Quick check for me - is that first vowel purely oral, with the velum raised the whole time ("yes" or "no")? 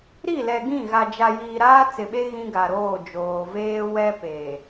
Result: yes